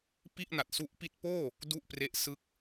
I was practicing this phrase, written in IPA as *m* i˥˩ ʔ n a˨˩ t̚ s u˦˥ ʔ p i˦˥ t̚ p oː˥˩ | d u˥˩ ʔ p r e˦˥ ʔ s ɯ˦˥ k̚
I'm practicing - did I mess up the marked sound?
yes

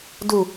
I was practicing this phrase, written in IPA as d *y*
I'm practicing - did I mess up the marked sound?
yes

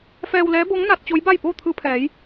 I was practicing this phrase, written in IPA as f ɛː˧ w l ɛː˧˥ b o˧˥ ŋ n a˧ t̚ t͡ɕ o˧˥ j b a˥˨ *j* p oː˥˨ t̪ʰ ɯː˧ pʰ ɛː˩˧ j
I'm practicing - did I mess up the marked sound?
no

